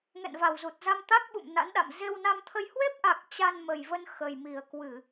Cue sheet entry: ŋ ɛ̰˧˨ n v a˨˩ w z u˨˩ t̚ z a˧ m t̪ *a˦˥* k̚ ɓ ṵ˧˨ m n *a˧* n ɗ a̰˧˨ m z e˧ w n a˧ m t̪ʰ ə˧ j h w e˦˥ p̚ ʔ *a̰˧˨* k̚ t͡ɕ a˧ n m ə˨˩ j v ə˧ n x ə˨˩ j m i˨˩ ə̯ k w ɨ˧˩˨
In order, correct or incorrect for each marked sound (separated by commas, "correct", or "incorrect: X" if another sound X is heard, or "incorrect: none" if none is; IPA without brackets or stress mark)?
correct, incorrect: a̰˧˥, incorrect: a˨˩